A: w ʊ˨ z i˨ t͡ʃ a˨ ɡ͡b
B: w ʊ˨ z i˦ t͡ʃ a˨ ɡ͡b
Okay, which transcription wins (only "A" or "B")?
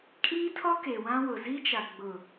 B